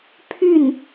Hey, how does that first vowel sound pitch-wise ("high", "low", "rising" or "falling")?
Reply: falling